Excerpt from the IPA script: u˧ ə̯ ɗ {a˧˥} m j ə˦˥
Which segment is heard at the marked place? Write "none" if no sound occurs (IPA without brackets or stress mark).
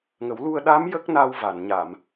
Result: a˧˥